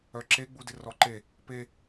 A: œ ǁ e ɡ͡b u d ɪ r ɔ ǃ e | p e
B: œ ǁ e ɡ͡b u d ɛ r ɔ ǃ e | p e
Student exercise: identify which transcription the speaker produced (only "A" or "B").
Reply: A